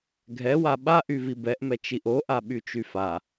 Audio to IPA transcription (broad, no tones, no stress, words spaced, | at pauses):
ɡʱɛwa ɓaʔyvi bɛʔmɛ t͡ʃiʔoʔa ɓyt͡ʃyfa